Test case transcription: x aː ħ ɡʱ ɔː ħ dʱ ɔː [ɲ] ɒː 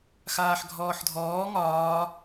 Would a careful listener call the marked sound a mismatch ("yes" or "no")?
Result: yes